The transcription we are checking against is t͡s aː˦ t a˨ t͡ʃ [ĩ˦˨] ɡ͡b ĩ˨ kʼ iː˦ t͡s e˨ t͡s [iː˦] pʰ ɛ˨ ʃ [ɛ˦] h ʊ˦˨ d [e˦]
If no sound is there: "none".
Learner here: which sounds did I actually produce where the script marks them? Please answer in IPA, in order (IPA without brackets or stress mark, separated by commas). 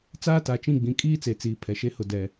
ĩ˦˨, iː˨, e˦, ɛ˦